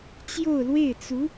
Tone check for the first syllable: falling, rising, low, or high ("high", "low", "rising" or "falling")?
falling